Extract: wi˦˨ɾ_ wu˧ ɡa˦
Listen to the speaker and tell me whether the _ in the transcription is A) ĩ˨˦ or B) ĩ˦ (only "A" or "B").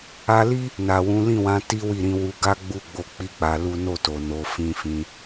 A